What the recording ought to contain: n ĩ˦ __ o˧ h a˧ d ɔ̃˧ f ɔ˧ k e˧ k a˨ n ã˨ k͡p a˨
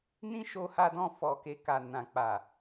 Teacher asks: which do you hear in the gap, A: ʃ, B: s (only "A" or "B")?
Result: A